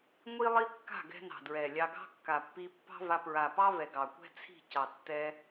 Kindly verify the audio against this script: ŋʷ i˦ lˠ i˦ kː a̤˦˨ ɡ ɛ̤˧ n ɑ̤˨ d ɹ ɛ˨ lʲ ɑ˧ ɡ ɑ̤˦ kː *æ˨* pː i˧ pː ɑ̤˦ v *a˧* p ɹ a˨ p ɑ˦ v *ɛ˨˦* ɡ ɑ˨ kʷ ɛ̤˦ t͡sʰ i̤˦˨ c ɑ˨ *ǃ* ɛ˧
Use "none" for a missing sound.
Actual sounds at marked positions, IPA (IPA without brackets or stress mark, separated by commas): a˨, a˧, ɛ˨, tː